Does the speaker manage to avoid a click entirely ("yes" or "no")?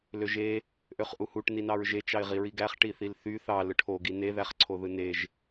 no